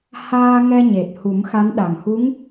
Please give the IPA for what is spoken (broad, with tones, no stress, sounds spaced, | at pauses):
h aː˧ ŋ ɛ˧ ɲ e˨˩ t̚ h u˨˩˦ m x a˧˥ n ɗ a˨˩ ŋ h u˧˥ ŋ